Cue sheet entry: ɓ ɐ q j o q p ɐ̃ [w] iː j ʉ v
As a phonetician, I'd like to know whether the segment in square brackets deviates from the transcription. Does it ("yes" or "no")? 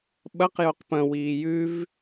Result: no